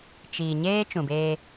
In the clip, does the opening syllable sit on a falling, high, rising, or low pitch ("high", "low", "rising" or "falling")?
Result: low